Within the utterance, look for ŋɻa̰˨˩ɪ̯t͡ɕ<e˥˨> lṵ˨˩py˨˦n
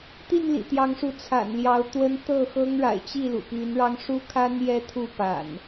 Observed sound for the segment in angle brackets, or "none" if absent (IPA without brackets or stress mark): i˥˨